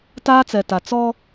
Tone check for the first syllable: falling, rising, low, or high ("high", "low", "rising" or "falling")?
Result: high